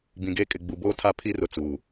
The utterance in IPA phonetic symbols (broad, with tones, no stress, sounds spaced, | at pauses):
b ĩ˨ ɡ eː˦ kʼ ɪ˨ ɡ͡b u˨ b oː˦ tʰ a˦ pʰ i˦ r ʊ˨ t͡s uː˨